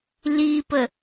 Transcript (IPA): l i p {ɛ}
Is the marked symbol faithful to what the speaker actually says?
no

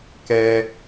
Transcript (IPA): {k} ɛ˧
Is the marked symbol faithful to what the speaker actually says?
yes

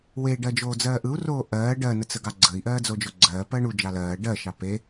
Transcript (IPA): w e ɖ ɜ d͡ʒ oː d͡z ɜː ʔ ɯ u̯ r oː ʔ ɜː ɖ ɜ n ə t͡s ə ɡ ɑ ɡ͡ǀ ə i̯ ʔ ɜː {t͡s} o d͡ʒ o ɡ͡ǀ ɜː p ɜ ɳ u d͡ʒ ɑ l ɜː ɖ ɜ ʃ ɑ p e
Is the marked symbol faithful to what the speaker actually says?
no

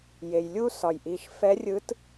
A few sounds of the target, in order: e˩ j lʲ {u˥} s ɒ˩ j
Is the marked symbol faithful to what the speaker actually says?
yes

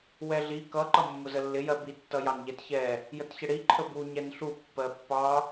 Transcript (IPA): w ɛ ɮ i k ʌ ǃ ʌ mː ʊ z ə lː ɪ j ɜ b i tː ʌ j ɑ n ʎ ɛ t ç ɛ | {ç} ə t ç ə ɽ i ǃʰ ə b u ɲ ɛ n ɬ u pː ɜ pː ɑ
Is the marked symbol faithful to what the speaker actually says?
no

